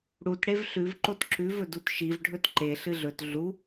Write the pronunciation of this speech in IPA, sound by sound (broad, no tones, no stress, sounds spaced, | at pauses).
ɽ u t ɽ e v ɬ ʉ v ǃ o t ǁ ʉ v ɵ d u t ʃ i v ɖʱ ɵ t ǃ e ɬ ɨ ɮ ɵ t ɮ u